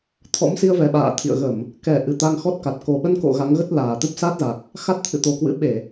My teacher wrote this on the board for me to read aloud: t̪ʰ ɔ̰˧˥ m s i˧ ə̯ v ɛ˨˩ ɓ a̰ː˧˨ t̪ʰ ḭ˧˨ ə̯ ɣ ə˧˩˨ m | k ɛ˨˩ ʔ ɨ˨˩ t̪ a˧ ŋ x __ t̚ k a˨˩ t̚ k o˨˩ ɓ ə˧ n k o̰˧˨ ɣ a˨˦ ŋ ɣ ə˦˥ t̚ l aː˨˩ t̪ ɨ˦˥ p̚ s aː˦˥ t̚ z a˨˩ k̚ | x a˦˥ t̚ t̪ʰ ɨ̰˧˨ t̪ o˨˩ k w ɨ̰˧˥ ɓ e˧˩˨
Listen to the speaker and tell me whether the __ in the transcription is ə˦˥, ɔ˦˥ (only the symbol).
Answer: ɔ˦˥